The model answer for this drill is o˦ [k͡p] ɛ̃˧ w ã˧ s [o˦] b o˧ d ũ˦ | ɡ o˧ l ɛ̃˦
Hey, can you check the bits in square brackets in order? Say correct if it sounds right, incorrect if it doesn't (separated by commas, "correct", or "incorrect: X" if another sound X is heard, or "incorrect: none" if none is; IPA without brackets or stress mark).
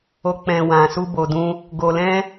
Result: correct, incorrect: u˦